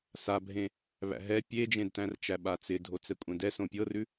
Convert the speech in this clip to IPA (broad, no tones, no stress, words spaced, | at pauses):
sabʱẽ | βæ̰ɦɛ pʲed͡ʒẽdtæ̃rt͡ʃæ ɓat͡sɪdʱo t͡sɛkʷʼɛ̃dɛ sõpʲɤrʉ